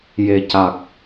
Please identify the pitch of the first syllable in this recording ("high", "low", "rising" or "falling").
low